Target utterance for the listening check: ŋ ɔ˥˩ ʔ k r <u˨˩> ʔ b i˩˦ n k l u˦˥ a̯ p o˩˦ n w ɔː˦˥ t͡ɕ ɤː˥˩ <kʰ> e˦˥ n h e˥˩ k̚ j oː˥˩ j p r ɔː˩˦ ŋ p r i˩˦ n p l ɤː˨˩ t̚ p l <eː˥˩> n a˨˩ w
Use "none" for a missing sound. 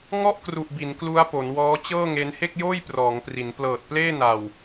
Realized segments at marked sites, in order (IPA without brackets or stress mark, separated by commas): u˨˩, ŋ, eː˥˩